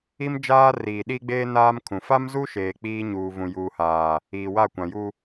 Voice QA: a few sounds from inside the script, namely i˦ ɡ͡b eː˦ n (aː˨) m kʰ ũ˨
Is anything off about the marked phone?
yes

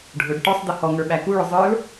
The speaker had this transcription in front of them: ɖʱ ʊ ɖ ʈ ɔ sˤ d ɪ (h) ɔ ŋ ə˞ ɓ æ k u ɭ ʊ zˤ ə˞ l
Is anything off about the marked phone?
no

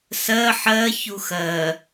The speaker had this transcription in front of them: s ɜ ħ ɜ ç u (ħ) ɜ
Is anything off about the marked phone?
yes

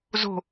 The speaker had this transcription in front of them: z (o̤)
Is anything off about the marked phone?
no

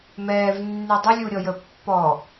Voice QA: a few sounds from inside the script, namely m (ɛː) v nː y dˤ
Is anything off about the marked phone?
no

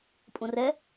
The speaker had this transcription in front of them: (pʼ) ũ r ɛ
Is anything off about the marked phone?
no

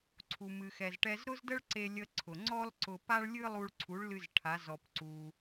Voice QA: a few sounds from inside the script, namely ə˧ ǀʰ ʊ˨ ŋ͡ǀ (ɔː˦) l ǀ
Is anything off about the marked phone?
yes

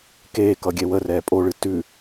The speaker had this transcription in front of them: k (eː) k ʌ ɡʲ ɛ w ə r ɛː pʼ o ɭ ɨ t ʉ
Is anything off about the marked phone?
no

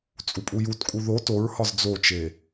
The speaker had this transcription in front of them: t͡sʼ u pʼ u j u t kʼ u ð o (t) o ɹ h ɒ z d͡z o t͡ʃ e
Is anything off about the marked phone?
no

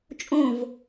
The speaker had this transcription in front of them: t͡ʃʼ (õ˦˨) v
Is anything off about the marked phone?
no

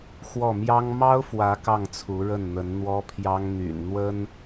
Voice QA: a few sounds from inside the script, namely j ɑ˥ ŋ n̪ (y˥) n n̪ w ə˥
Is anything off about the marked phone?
yes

